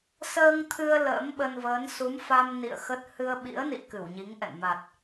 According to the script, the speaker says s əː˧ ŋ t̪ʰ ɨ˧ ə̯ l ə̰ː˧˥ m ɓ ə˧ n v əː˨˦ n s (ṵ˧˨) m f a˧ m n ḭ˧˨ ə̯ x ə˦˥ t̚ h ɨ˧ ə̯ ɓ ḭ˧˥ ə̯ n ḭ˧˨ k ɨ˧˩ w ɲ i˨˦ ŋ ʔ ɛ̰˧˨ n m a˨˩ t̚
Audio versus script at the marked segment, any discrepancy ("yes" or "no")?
yes